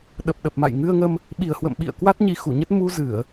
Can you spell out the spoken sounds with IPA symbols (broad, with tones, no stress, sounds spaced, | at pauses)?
ɗ ə˨˩ p̚ ɗ ə˨˩ p̚ m a̰˧˨ j ŋ ɨ˧ ə̯ ŋ ə˧ m | ɓ i˨˩ ə̯ h w ə̰˧˨ m ɓ ḭ˧˨ ə̯ k w a˦˥ t̚ ɲ i˧ x u˧˩ ɲ ə˦˥ t̚ m u˧ z ɨ˧˩˨ ə̯